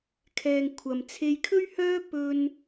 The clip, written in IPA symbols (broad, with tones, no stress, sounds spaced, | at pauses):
kʰ ɛː˨ ŋ kʷʰ ɐ˨ m t͡sʰ e˧ j kʰ ɵ˥ ɥ h œː˥ p ɵ˥ n